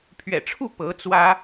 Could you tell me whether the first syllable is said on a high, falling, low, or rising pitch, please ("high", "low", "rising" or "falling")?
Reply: low